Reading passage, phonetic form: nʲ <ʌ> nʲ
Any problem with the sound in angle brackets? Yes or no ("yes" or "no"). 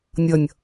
no